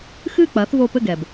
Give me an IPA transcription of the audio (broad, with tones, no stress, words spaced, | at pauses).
xɨː˥˩k͡pɐː˩˥θ voː˧pɘ˥˩ ɡɛ˩b